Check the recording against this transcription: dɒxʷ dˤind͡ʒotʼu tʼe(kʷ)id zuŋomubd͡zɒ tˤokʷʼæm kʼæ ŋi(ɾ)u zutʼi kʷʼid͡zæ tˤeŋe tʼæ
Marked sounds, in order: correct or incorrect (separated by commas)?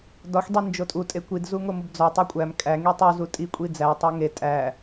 correct, incorrect